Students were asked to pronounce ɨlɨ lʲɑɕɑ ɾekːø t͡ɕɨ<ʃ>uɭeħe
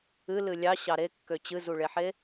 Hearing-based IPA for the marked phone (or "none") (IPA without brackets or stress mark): z